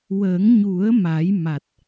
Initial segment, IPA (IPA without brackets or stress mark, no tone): w